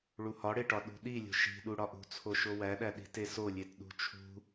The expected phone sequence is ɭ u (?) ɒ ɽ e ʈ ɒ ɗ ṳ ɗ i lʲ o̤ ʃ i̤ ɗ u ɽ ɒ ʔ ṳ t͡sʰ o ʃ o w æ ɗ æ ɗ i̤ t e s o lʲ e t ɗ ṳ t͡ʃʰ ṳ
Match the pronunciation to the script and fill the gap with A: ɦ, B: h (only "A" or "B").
B